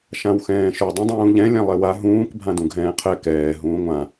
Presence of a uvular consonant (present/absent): present